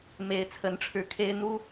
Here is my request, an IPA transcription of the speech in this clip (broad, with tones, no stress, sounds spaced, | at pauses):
m e˧˥ ɪ̯ t͡sʰ ə˧˥ n ʈ͡ʂʰ ɻ̩˧˥ kʰ e˥ ɪ̯ n̪ u˥